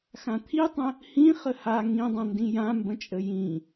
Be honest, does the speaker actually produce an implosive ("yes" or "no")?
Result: no